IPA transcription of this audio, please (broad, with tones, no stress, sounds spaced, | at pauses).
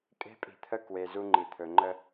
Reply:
kʼ e̤˦ pʼ i̤˨ t̪ʰ ə˦ k w e˨ z u˦ ŋ͡ǃ i˨ t̪ʰ ɵ˨ ŋ͡ǃ ə˦